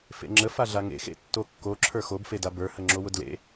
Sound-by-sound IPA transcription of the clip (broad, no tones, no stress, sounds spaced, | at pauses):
f ḛ ŋ͡ǁ ə f a ɮ a ŋ ḛ x ḛ tː o kː o ǁʰ ə˞ x o b f e d a b ə˞ h ə ŋ͡ǁ o w ʊ d l ḛ